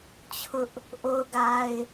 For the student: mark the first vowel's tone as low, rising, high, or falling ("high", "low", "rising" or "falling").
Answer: high